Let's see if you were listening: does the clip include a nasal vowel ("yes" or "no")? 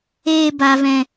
yes